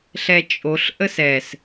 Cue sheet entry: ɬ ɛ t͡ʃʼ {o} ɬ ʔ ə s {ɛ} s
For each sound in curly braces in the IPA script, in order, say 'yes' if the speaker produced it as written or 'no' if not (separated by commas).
yes, yes